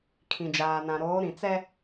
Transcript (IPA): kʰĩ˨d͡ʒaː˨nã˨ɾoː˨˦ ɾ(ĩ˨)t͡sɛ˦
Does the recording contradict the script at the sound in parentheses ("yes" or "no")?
no